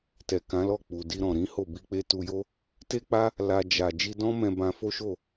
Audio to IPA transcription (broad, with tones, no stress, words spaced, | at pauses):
tɛ˨kã˨˦lɔ˦˨ k͡pu˨ di˧ɾɔ̃˨ ɾĩ˨˦ho˦˨ bi˧k͡pe˦ tu˧jo˦ | te˦k͡pa˦ | la˧ d͡ʒa˨ d͡ʒi˧dɔ̃˦mɛ̃˧bã˧ fo˦ʃo˦˨